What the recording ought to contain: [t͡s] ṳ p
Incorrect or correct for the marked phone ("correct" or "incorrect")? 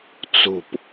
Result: correct